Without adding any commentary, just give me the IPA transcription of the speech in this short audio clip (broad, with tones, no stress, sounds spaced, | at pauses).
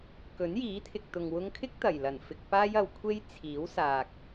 k ɵ˨˥ n j iː˨˥ t̪ʰ ɪ˨ k̚ t̪ ʊ˨ ŋ w ʊ˧ ŋ kʰ ɪ˥ k̚ t̪ ɐ˨˩ j l ɐ˨˩ n f ɪ˧ k̚ p aː˥ j ɐ˨˧ w kʷʰ e˥ j t͡sʰ iː˨˥ w s aː˨ k̚